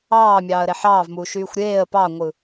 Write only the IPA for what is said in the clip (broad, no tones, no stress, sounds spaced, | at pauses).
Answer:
ɑː mʲ ɑː ə̯ ɾ e ħ ɑː v m uː ʃ yː xʷ ɾʲ eː ə̯ p ɑ ŋʷ ɯ